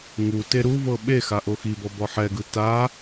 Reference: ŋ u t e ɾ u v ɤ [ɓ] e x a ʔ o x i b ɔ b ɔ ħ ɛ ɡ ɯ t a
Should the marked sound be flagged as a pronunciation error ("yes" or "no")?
no